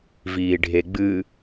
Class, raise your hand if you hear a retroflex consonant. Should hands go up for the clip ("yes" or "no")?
yes